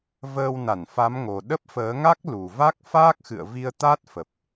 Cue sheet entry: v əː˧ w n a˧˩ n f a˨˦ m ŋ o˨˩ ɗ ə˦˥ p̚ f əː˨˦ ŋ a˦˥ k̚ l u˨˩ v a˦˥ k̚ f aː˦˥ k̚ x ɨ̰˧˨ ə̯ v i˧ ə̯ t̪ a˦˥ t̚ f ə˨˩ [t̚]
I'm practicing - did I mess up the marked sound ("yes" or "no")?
yes